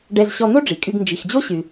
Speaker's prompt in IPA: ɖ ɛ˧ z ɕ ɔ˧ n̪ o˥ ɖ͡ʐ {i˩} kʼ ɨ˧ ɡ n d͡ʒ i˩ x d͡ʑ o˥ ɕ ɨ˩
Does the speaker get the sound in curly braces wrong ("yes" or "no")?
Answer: no